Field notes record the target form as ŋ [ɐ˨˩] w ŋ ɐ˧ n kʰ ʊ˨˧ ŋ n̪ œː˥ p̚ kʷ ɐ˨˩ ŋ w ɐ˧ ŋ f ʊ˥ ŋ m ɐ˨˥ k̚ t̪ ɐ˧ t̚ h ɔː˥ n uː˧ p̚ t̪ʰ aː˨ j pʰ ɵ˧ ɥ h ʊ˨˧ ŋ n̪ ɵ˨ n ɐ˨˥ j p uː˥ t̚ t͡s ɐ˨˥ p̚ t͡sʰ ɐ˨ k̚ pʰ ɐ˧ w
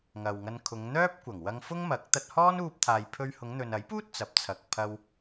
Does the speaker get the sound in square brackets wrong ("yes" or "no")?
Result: yes